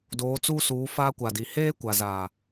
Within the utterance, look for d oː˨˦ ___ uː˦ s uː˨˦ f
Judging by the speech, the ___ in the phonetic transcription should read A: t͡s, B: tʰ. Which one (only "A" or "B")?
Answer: A